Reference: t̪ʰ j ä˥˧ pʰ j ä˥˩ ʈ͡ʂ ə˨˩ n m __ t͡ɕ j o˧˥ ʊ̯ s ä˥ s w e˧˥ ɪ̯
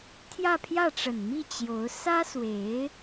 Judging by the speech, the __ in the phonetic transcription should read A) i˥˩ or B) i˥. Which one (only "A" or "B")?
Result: A